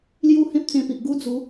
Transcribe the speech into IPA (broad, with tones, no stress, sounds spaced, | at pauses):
l j u˦ h ẽ˦ p̚ t͡s ẽ˧ p i˨ ʔ ɡ u˦ d͡z u˨˦